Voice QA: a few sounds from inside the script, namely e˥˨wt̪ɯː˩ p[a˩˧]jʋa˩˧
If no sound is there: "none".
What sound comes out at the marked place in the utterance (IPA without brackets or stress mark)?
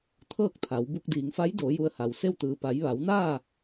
a˩˧